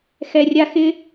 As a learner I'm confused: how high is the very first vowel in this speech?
mid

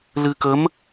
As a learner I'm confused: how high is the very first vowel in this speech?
high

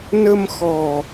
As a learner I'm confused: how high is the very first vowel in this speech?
mid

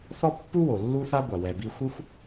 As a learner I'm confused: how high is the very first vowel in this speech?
mid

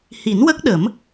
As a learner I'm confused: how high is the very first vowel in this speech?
high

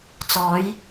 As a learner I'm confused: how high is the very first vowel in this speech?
mid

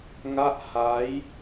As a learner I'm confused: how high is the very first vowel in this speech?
low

